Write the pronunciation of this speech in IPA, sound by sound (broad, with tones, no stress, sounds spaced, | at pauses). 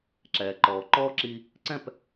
ǁ ɛː˨ ǃ ɔː˨ ǃ ɔː˦ ǁ i˧ | ǀ ɛ̃˦˨ p